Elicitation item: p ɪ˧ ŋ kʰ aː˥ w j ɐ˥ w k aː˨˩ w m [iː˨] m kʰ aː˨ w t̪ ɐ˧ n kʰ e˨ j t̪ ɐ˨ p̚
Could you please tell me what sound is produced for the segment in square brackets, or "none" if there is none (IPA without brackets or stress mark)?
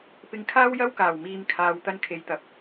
iː˨